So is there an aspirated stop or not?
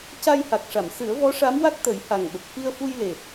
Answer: no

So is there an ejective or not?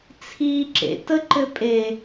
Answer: yes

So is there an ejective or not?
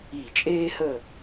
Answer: yes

